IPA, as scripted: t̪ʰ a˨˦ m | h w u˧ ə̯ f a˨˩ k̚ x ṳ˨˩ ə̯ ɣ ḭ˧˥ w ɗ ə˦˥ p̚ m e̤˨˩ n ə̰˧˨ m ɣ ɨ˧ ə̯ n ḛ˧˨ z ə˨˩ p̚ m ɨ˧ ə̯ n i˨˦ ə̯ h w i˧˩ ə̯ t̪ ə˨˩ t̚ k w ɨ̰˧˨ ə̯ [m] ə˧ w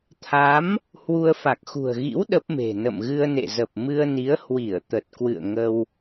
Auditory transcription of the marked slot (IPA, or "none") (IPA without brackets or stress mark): ŋ